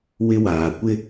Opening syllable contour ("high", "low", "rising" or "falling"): high